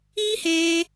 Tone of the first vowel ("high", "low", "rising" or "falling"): high